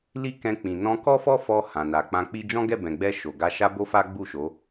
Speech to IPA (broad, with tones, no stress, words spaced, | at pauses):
li˦kɛ̃˧k͡pĩ˨ nɔ̃˧kɔ˦fɔ˦fɔ˧ hã˨na˨k͡pã˧k͡pi˦ d͡ʒɔ̃˦ɡɛ˦˨bɛ̃˨ɡ͡bɛ˧ ʃo˨ɡa˧ ʃa˧ bo˦fa˦ ɡ͡bu˦˨ʃo˨˦